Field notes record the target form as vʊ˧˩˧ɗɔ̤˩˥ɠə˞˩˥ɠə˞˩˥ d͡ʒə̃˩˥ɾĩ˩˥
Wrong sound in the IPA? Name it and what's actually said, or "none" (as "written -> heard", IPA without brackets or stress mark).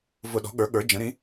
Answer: none